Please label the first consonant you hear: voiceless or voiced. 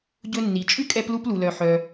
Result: voiced